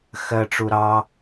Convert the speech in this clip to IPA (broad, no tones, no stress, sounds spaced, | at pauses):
x ɜ ʈ͡ʂ u ɾ ɑ